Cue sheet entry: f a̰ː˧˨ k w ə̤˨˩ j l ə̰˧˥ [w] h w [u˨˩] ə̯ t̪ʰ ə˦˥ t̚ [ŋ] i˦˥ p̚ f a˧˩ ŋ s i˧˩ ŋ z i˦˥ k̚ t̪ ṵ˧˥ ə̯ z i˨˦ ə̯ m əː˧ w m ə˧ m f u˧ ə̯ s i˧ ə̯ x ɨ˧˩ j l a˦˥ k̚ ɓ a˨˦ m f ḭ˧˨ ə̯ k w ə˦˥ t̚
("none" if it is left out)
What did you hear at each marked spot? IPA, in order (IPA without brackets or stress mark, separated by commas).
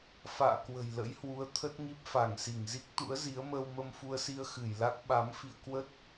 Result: j, u˨˦, ŋ